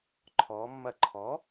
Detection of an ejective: absent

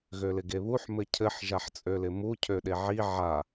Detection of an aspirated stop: present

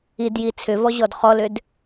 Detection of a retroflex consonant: absent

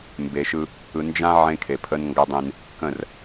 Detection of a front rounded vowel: absent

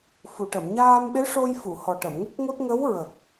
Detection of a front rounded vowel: absent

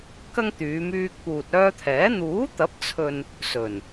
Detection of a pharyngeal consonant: absent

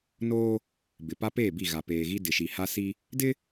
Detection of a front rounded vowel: absent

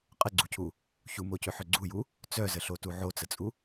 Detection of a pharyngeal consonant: present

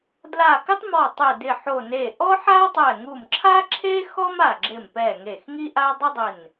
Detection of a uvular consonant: absent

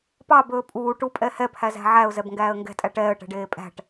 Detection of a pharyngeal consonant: present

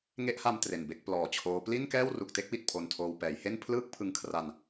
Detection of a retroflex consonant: absent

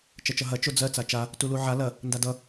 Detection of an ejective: absent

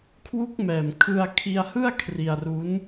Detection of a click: absent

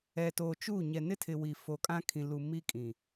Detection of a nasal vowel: present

